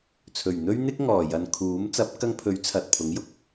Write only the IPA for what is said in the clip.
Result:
t͡sʰɵ˨˩ɥn̪ɵ˥ɥ n̪ɪ˥k̚ŋɔː˨˩jɐ˨n kʰuː˨˥m t͡sɐ˨˥p̚kɐ˧ŋpʰɵ˨˥ɥ t͡sʰɐ˨t̚pʰʊ˨˥ŋjʊ˨˥k̚

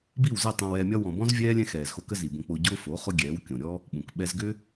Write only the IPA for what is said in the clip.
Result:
bi˦˨wzɛ˦˨ tˤõ˧wɛː˧mʲɒ˦ wɔ̃˨bɔ̃˦zvʲɛː˦ lʲɛ̃˦xɛː˨zxo˧ kə˦zi˨bõ˧ k͡po˧ ɟʊː˦fo˨˦ χʊ˦ɡʲɛː˨˦wkʲõ˨ ɾʲɔ˦ | ɓũ˨kɓɛ˦z ɡʏ˦

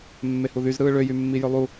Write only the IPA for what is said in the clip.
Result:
mːehuðyzɾɯː ɭøjymːi jølˠu

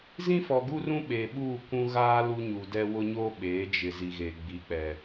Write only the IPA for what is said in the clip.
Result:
zĩ˦fɔ˨ɡu˦rũ˦ ɓe˨ ɓuː˦˨kʷũ˦ ɣaː˦ lu˦ɲu˨dɛ˦ wʊ˦ɲoː˦ ɓeː˨˦d͡ʒɪ˨ zi˨ɣe˨ ɡ͡bi˨˦k͡pɛ˨

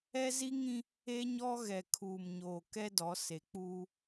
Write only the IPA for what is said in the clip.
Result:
ɛ˦zi˦ŋĩ˦ | e˦ɲɔ˦ ɣɛ˨kʰuː˨mɲoː˨ kɛ˦dɔ˨˦ se˨k͡puː˦

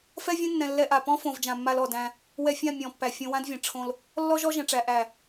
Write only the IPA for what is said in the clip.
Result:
fɛ˦vʲɛ̃˦nːɛ̃˨ lːɛ˦ʔa˦˨ pɔ̃˦fõ˨v d͡ʒã˨mːa˦lɔ˨dæ̃˦ | wɛ˨ fʲã˦˨ mʲɔ̃˨˦pːæ˨fʲõ˦ wã˦dvʲɛ̃˨ ʈ͡ʂʰõ˦l | lːɔ˦ʒɔ˦ ʒɛ̃˨ʈ͡ʂæ˨ ʔæ˨

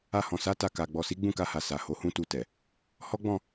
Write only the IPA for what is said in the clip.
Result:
a˧hɔ̃˨ sa˨˦ ta˧ka˨ ɡ͡bɔ˨si˨˦ ɡ͡bũ˦˨ka˧ha˨ sa˨ ho˨˦hũ˦tu˧tɛ˨ | hɔ˦ɡ͡bɔ̃˦˨

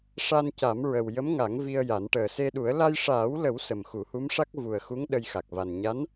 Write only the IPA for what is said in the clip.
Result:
ʂa˧nca˨˩˦mɹə˨˩w jə˧˥mŋa˨˩˦ŋ vi˧ə̯ja˨˩˦n ʈəː˨˩se˧ɗu˨˩˦ə̯ la˧jʂaː˨˩˦wlə˨˩˦w sə˨˩mxu˨˩˦hu˧˥mʂa˦˥k̚ vu˨˩ə̯xu˧˥ŋ ɗə˧jxa˨˩k̚va˨˩n ɲa˧˥n

